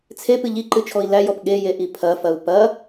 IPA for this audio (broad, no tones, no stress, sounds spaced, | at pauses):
t͡sʰ e p ɨ ʎ i ǃ ɨ t͡ʃʰ ɔ i̯ l æ j ɔ p ɠ e j e ʔ i pʰ ɐ f ɐ u̯ p ɐ